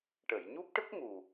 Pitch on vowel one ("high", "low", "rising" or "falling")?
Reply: low